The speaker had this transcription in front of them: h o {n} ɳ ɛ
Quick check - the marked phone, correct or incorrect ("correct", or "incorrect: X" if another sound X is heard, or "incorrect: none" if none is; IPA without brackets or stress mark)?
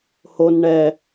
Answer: correct